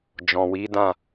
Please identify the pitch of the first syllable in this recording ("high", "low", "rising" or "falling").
low